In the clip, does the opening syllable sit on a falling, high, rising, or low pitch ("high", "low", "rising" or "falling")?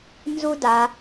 high